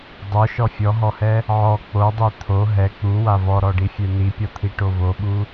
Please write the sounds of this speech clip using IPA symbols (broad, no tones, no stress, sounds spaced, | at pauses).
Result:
dˤ o ʃ ɔ fʲ ɔ ɦ ɔ h ɛ | ʕ ɔ k͡p o dˤ i t̪ʰ o ɦ ɛ k͡p u w a v ɔ ɾ ɔ ɖ i fʲ ɛ n̪ i pʲ ɔ t̪ʰ i ʈ o v o ɓ u